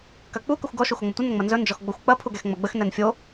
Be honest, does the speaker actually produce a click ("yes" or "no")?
no